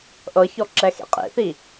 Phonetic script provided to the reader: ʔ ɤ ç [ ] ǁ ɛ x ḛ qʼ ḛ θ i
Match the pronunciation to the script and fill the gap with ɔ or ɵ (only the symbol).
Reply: ɔ